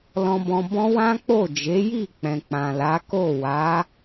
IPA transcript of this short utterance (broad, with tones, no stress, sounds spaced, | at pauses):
l ɔ̃˧ b ɔ̃˧ b ɔ̃˦ w ã˦ k͡p o˦˨ d͡ʒ e˨˦ j i˦˨ k͡p ɛ̃˨ k͡p ã˨ l a˨˦ k o˦˨ w a˨˦